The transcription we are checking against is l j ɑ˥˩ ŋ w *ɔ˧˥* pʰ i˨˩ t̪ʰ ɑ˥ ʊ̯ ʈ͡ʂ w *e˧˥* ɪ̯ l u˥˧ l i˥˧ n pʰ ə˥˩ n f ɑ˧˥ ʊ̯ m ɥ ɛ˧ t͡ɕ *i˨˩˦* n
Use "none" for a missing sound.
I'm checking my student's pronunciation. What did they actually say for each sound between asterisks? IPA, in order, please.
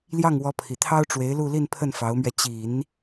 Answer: ɔ˧˥, e˧˥, i˨˩˦

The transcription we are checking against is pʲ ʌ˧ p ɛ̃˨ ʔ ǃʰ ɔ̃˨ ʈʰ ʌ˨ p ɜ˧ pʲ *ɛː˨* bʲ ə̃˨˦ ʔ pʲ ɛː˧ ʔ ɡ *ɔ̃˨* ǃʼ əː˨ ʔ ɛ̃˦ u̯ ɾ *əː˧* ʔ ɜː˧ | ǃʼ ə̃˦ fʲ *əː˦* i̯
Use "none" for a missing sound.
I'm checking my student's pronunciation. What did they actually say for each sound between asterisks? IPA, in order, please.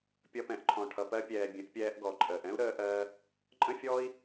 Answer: ɛː˨, ɔ˨, əː˧, ɔː˦

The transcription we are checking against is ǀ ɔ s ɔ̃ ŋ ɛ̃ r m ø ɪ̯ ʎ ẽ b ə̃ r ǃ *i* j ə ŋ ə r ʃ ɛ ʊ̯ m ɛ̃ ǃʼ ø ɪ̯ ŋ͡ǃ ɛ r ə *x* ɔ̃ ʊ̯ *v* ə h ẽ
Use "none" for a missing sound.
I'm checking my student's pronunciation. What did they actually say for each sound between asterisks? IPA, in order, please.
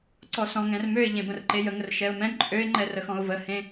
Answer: e, x, v

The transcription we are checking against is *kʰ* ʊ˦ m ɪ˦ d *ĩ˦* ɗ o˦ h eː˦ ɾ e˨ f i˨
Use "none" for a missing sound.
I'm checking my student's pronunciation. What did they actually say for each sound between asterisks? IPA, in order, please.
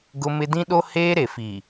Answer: ɡ, ĩ˦

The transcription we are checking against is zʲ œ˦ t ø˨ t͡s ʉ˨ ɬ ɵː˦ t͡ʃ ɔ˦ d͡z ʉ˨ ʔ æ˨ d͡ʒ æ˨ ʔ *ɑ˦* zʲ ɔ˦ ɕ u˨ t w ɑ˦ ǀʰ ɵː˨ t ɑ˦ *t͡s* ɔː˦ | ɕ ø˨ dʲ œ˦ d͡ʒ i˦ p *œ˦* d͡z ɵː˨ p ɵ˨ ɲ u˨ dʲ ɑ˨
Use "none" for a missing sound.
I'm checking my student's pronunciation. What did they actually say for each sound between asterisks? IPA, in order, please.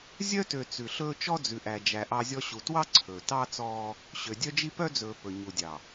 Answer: ɑ˦, t͡s, œ˦

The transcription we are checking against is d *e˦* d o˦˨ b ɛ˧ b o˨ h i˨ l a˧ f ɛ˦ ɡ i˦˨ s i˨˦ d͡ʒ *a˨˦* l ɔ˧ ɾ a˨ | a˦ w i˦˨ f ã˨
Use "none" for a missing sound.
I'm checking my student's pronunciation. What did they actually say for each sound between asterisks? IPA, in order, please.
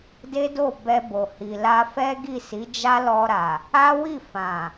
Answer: e˦, a˦

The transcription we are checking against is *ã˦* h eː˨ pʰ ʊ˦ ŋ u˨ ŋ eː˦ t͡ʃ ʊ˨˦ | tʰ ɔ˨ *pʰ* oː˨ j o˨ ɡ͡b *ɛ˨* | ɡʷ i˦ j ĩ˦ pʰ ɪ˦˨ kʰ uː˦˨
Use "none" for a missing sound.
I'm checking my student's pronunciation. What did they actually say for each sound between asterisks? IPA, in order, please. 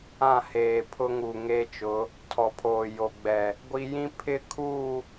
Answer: ã˦˨, pʰ, ɛ˨

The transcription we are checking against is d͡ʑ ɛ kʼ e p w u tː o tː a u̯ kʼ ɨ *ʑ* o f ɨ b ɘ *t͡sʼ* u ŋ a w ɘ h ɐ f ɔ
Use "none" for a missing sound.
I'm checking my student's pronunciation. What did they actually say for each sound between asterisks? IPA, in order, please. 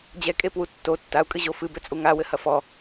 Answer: ʑ, t͡sʼ

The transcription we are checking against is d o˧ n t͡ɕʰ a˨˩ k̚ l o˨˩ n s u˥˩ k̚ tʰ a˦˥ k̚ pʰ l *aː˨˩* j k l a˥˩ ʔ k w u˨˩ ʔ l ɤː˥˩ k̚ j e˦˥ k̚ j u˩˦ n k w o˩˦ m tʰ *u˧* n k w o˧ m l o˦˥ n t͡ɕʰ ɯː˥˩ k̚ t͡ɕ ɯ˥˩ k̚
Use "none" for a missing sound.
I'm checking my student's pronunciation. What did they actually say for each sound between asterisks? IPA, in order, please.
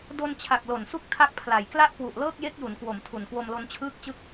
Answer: a˨˩, u˨˩

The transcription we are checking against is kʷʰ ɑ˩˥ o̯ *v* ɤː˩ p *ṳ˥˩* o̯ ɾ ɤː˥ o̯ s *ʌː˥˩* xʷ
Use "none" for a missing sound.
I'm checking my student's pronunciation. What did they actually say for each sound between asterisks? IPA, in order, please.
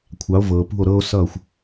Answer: v, ṳ˥˩, ʌː˥˩

